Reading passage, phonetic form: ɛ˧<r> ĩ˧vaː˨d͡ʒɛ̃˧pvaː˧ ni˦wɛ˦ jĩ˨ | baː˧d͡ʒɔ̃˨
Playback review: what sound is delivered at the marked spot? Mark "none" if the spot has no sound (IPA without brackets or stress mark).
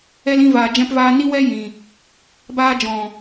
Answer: l